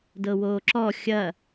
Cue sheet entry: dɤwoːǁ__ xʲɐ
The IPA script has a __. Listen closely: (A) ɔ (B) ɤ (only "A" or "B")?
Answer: A